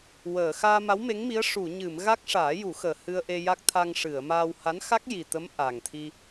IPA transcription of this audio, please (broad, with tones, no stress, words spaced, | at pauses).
wəː˨˩˨ xaː˧ma˧˥wme˧˥ŋmi˧˥ə̯ ʂu˨˩˨ɲɨ˨˩˨mɣa˦˥k̚ ʂaː˨˩˦ju˨˩˦xəː˨˩ hɨ˧ə̯ʔe˧ja˦˥k̚ t̪ʰa˧ŋʂɨ˨˩˨ə̯maː˧w ha˧˥nxa˦˥k̚ji˨˩t̪ə˧˥m ʔa˨˩ŋt̪ʰi˧